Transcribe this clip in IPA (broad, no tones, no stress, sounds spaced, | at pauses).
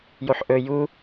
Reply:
j o ħ ʔ ɵ j u